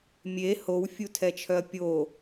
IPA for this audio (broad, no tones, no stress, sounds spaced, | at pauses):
mʲ e h o w fʲ u tʰ ɛ t͡ʃʰ œ ɐ̯ pʲ o